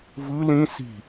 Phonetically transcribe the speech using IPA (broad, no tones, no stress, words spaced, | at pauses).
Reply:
vɯ lĩ si̤